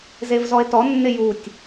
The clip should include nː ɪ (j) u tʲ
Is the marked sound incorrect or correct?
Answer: correct